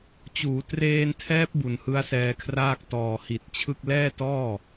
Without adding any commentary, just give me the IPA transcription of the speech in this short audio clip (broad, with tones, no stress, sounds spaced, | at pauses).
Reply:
t͡ɕ uː˩˦ t r eː˧ n tʰ ɛː˦˥ p̚ b u˨˩ n h ɯ˦˥ a̯ s ɛː˧ kʰ r aː˥˩ k̚ t ɔː˨˩ h i˨˩ t̚ t͡ɕʰ ɯ˥˩ k̚ l ɛː˥˩ t ɔː˥˩